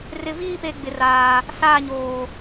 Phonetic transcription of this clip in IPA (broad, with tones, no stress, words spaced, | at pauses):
rɪ˨viː˦˨pe˨ ɡ͡bɪ˨raː˨ | saː˦˨ɲoː˨